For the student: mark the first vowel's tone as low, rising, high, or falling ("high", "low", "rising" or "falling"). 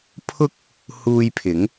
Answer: high